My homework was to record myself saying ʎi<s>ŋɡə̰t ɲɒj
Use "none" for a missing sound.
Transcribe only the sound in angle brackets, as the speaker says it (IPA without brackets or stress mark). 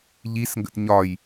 s